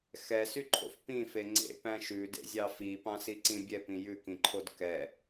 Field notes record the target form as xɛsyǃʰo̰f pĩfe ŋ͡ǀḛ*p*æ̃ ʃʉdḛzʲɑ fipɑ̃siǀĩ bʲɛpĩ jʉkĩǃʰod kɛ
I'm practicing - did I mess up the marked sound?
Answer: no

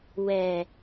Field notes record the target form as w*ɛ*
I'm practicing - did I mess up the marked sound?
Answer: no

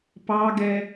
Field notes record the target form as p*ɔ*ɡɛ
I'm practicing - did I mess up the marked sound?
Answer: yes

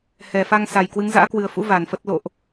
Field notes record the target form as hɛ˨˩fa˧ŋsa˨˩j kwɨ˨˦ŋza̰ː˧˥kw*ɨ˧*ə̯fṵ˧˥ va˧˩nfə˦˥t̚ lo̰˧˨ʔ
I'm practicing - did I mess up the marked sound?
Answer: yes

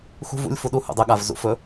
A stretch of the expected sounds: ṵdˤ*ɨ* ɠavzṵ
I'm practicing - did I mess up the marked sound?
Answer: no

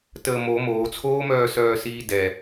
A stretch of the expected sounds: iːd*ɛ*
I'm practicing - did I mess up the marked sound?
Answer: no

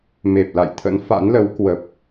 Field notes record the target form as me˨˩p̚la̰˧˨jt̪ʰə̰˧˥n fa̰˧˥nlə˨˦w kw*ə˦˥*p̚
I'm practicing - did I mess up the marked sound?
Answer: yes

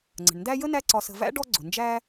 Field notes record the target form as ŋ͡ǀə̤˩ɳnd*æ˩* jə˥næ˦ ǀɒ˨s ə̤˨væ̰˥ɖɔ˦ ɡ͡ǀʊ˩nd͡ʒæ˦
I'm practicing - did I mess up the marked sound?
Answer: yes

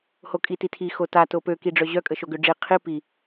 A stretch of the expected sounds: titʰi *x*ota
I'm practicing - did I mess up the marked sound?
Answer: no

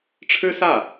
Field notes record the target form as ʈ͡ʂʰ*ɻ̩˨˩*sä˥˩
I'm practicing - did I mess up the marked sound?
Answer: yes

